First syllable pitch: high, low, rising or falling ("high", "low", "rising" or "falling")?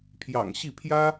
low